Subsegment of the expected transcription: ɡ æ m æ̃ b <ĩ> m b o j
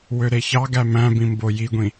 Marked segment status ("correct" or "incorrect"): correct